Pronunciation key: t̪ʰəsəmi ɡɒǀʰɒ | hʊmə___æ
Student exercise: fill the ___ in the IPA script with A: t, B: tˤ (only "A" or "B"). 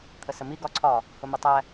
B